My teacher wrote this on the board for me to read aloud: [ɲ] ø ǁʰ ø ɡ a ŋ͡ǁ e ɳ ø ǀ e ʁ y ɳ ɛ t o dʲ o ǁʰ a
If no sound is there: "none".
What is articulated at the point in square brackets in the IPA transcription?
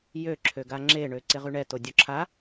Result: j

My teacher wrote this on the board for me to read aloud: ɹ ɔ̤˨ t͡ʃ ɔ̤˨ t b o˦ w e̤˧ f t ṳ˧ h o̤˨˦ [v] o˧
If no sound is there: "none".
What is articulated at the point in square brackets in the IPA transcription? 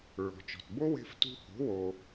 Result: w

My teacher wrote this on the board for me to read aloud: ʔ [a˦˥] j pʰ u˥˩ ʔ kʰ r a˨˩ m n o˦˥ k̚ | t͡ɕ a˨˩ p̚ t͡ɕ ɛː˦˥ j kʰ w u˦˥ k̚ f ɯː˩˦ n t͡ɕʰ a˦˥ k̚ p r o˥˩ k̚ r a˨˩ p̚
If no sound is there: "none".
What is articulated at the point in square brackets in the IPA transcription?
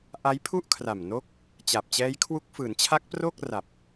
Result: a˦˥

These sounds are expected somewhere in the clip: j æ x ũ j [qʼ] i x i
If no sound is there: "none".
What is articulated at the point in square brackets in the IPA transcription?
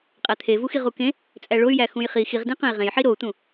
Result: χ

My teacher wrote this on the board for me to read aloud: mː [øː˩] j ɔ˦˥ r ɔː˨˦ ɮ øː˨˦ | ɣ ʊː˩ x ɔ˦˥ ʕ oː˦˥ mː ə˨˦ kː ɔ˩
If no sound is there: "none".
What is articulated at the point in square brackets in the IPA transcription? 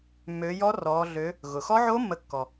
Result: øː˨˦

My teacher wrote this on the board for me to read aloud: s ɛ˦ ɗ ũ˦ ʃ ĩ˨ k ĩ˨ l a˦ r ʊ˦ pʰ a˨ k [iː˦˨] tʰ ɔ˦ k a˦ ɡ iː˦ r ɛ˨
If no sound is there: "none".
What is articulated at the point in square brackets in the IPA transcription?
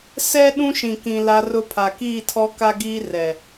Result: iː˦˨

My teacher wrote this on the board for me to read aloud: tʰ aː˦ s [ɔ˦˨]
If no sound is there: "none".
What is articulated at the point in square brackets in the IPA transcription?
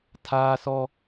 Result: ɔ˦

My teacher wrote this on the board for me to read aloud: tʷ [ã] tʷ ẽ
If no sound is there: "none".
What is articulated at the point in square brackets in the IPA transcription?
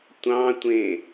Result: ɑ̃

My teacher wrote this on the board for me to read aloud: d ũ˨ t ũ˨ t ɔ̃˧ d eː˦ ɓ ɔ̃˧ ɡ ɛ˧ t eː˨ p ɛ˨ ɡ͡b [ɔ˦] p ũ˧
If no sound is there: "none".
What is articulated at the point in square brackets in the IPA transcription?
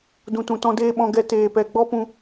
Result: ɔ˦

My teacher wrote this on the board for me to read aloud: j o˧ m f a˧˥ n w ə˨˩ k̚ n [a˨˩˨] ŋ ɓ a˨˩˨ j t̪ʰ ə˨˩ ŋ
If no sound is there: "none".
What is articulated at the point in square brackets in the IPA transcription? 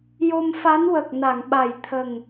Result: a˨˩˨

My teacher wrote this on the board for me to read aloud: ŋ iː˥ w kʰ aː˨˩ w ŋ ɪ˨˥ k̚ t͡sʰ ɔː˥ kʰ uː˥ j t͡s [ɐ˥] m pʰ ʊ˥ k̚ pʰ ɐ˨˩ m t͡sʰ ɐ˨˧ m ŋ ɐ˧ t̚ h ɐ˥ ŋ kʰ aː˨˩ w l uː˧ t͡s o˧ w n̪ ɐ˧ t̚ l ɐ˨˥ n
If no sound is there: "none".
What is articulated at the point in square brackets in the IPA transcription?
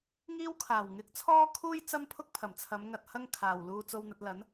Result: ɐ˥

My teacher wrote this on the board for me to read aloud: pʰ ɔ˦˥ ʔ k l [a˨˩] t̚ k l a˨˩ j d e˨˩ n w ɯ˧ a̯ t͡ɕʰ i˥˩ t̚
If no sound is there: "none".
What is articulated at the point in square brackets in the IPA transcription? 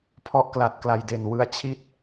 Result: a˨˩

